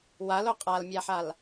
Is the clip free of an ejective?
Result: no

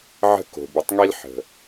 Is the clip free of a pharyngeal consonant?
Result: no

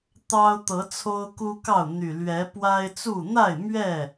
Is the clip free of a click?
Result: yes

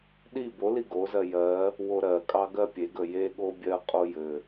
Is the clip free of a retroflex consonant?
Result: yes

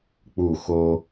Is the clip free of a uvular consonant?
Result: yes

